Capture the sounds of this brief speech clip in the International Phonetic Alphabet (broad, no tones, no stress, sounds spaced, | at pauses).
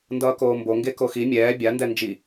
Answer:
n d ʌː k oː m b o ŋ ɡ e k o x i mʲ ɛː bʲ a n d ɛ n d͡ʒ i